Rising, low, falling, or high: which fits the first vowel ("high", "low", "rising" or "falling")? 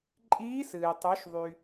rising